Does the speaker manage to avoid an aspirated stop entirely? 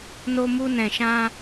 yes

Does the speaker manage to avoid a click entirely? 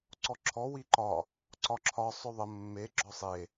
no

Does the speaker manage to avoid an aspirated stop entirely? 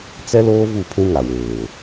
no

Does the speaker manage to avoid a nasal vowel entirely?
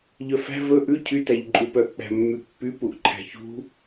yes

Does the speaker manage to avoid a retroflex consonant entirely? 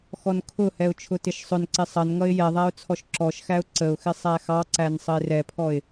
yes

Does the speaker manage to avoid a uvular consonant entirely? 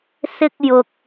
yes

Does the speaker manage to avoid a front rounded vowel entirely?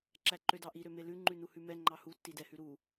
no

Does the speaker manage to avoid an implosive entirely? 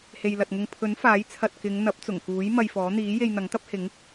yes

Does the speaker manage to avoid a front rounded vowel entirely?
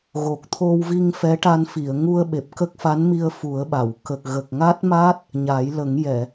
yes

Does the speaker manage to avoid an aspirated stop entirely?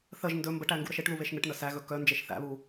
yes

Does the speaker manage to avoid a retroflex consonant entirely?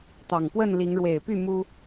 no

